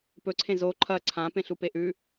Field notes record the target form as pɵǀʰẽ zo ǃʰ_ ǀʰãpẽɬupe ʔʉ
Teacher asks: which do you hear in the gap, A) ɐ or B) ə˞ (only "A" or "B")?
A